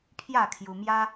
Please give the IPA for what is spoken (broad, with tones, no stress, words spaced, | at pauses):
pʰja˥˧kʰju˧mja˦